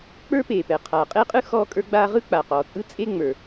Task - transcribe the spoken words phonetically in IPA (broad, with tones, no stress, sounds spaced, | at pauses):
k͡p ə˞˥ p eː˩ p ɛː˩ qʰ aː˩ qʼ e˥ qʼ ɯ˥ x ɔː˥ kʼ ə˞˥ ɡ͡b aː˥ ʁ ɯ˥ k͡p a˩ q ɔː˩ t͡sʼ ɯ˥ t͡sʼ e˥ ŋ͡m ə˞˩